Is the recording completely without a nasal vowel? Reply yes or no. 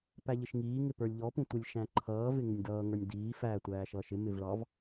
no